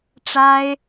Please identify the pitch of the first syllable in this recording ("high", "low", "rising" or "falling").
high